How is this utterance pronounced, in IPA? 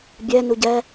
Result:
bʲɛ nuɟɛ

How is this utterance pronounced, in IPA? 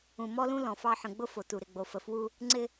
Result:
ũ˨mɔ˦lũ˦ lɔ̃˨fɑ˦ ħə̃˨ ɡ͡bʊ˦ fo˨tu˨ ɾɪ˨ɡ͡bo˨fə˨ fwu˦ | ŋ͡ǀɪ˦

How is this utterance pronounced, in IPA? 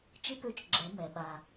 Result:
t͡ʃɪ˥pø˧˥t͡ʃ ɡ͡ǁɛ˩˧ mɛ˩ ɓa˩

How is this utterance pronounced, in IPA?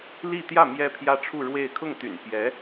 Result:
li˥˧ t̪jä˥˩ mjɛ˥pʰjä˥ʈ͡ʂʰu˥˧ɻwe˥˧ɪ̯ kʰʊ˥˩ŋt̪y̰˨˩n pjɛ˧˥

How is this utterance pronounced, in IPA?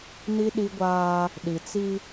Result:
ni˦ɗi˦ɡʷaː˦ | ɗi˨t͡si˦

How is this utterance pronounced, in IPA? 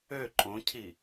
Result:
ø ǃʼõcʰi

